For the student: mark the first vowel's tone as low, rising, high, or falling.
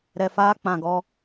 low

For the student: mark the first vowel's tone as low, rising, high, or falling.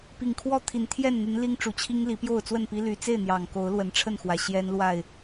low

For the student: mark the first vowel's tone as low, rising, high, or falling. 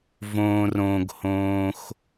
low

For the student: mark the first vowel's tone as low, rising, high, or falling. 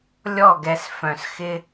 falling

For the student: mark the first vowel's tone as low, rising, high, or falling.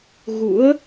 rising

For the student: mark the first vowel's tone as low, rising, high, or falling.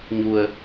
low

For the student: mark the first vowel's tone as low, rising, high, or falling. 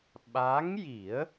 rising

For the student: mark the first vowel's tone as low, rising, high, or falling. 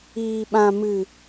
low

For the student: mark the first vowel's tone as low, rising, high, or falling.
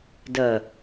low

